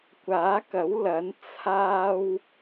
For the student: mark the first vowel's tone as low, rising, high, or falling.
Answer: rising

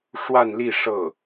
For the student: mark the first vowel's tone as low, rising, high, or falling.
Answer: falling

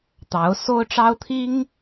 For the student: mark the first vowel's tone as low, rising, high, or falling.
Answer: rising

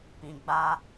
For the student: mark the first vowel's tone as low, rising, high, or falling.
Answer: low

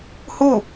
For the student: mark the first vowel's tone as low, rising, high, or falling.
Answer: falling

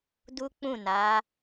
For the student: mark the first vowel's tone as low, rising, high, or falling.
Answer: high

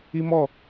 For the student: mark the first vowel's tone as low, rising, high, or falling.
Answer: high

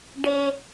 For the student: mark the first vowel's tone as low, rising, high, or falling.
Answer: high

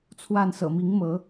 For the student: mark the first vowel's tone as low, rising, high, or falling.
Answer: falling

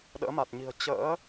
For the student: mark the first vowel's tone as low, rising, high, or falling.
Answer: rising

